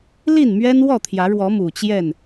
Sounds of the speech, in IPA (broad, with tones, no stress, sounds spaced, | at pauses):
l i˥˨ n m ɥ ɛ˦ n w ɔ˥˨ t̪ʰ j ä˨˦ ɻ w ɔ˨˦ m u˨˩ t͡ɕ j ɛ˥˨ n